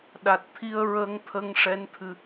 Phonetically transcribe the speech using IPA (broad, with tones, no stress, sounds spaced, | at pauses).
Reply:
ɗ a˨˩ t̚ t̪ʰ i˧ ə̯ ɹ ə˧ ŋ t̪ʰ ə˧ ŋ ʂ ɛ˧˥ n t̪ʰ ɨ˧